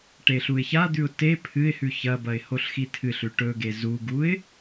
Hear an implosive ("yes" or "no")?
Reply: no